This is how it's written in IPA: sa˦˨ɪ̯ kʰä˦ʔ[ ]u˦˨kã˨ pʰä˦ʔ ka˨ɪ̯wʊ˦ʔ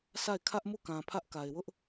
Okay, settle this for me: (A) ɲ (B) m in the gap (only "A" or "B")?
B